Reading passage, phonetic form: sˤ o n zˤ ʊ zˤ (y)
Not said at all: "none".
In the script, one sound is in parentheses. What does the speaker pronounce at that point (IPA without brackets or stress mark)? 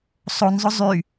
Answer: y